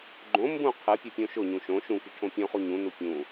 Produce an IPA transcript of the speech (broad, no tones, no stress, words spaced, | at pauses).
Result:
ɡ͡ǃõ mbũ qʰɨ pʲupʲõʃʊɲũ ʃõ ʃũki ʈʰõpʲõχu ɲũnu pʲũ